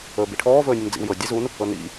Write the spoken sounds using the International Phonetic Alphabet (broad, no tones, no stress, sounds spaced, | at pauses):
ɵː b i ʈʰ ɔː v ɵː nʲ u n d͡z ḭ w j ɤ dʲ e z u n | ɤ n ḭ